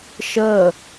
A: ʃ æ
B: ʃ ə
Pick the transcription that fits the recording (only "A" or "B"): B